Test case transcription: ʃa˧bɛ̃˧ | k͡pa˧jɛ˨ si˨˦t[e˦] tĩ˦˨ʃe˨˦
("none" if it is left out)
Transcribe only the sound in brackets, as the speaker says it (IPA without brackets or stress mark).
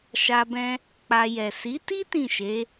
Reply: i˦